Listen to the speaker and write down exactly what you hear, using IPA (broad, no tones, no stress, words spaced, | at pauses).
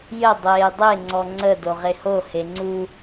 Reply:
jə dˤeːdˤe ŋ͡ǀɔŋ͡ǀə doʁeho heŋ͡ǀu